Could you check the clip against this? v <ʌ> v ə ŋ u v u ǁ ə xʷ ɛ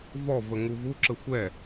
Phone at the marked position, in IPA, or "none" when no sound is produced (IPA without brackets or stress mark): ɔ